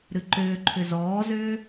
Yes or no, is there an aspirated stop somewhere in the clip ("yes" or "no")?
yes